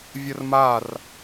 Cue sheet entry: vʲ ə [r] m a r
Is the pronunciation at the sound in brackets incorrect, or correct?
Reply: correct